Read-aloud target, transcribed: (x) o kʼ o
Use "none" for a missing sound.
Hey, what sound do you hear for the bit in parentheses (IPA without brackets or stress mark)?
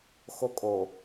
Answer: x